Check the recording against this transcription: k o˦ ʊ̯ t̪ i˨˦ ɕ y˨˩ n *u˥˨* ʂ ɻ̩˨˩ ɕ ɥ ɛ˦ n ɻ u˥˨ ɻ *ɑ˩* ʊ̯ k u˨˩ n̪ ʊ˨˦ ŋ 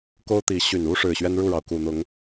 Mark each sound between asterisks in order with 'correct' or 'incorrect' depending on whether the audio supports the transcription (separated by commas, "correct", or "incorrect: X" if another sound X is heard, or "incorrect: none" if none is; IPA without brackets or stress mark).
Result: incorrect: u˦, correct